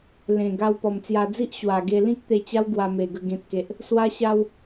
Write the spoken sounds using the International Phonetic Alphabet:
l ẽ˨˩ ɡ a˧ w p ɔ˨˩ m t͡s j a˧ d͡z i˦ ʔ ɕ w a˨˩ ɡ e˧ l ĩ˦ k̚ t̪ e˧ t͡ɕ a˦ w ɡ w a˧ m e˨˩ ɡ ə˧ ɡ ẽ˨ t̚ k e˨ ʔ | s w a˦ ɕ a˦ w

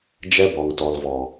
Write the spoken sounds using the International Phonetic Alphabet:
d͡ʒ ɛ˦ b ɔ˨ ŋ t ɔ˨ l v ɔ˨

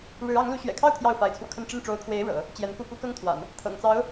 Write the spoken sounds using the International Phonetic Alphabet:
ɻ ɻ̩˧˥ ɑ˧˥ ŋ l u˧˥ ɕ ɥ ɛ̰˨˩ kʰ ɑ˥˧ ʊ̯ t̪ʰ j ɑ˥˩ ʊ̯ f a˧˥ ɪ̯ t͡sʰ w ɔ˧ kʰ ə˥˧ n ʈ͡ʂ ə˥˩ n ʈ͡ʂ o˧˥ ʊ̯ kʰ w e˧˥ ɪ̯ ɻ ɤ̰˨˩˦ | t͡ɕ j ɛ˧˥ n k u˥˩ p u˥ k ɤ˥ ŋ t̪ʰ w a̰˨˩˦ n | t̪ʰ ɤ̰˨˩ ŋ t͡s ɑ˧˥ ʊ̯

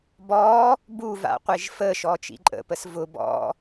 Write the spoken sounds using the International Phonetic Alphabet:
b ɔ | b u v a̰ qʷ e ʒ f ə ʃ ɔ t͡ʃ ḭ ǃʼ ə̰ p ə s v ʊ b ɔ̰

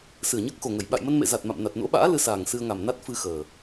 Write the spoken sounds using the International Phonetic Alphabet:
s ɨ˧˩ ə̯ ɲ əː˦˥ k̚ x o˨˩ ŋ ə˧˩ j ɓ a̰˧˨ j m ə˧ n m ḛ˧˨ z a˨˩ t̚ m a̰˧˨ m n a˨˩ t̚ n o̰˧˥ ɓ a̰ː˧˥ l ɨ˧ s aː˨˩ ŋ s ɨ˧ ə̯ ŋ a˨˩ m n a˦˥ t̚ f ɨ˧ x əː˨˩

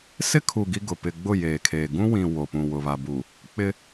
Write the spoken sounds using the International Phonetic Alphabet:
s ɪ˦ kʰ u˨ ɡ i˦ ɡ ʊ˨ p ɪ˨ ɡ͡b ʊ˦˨ j eː˨ kʰ eː˨ ɡ ũ˦ w ĩ˨ w o˨ p ũ˨ w ʊ˨ β a˨ b u˨ | k͡p ɪ˦

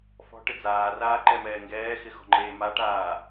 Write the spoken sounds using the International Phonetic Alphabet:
f ɔ̤ ʈ ɪ d͡z aː r aː ǃ ɛ m ɛː ŋ ɡ ɛː x ɪ x ɔ̤ ŋ͡ǃ eː m a ʈ aː

